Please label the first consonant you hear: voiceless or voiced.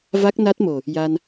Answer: voiced